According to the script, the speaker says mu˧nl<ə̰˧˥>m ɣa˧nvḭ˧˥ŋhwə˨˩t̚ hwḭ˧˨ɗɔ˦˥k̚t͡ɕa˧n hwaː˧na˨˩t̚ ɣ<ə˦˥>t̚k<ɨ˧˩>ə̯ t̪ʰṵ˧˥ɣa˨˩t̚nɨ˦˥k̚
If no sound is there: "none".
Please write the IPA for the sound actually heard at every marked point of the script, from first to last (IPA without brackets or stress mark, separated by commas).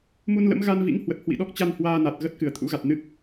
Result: ə̰˧˥, ə˦˥, ɨ˧˩